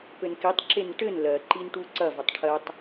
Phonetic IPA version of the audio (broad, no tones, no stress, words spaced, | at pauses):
pɘnkitˤǁen ʈɘn lɜǃin ʈuǀɐvɐtˤ ʈʰɜtˤ